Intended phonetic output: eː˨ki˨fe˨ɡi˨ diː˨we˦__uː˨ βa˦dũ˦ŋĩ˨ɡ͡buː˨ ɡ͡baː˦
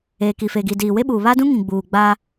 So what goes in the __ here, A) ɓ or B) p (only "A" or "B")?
A